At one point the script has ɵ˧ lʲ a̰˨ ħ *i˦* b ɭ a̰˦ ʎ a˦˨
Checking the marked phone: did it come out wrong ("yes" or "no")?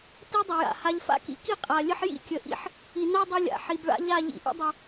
yes